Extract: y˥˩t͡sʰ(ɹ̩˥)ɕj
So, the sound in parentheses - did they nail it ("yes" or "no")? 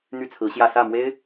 no